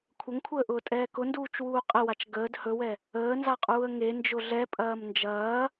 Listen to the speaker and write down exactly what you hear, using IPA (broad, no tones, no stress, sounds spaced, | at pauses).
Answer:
kʷʰ ə ŋ kʷʰ əː ʔ ʊː tʼ ɛː k ʊ n d uː t͡ʃ w uː qʼ ə w a t͡ʃ ɡ əː d h ɵ w ɛ | əː n z a qʼ uː ə̯ ŋ e n d͡ʒ ʊ ɮ ɛ pʼ ɐː m n d͡ʒ ɐː